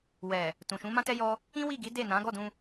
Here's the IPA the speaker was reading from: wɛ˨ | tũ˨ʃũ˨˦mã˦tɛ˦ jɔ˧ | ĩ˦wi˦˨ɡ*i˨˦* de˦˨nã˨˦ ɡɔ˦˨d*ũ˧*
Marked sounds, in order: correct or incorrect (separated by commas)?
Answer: correct, correct